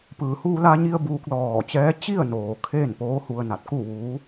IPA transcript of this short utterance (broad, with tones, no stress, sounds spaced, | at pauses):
p ɯː˩ h uː˧ l a˧ ɲ i˧ ə̯ b uː˧ k̚ l ɔː˧˩ t͡ɕ ɛː˧˥ t͡ɕ i˥˨ ə̯ n oː˩ kʰ eː˥˨ n p oː˧˥ h u˧ ə̯ n a˧˩ t̚ k u˥˨ ʋ uː˧˥